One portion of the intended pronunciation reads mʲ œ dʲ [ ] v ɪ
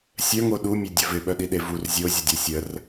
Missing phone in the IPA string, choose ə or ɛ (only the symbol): ə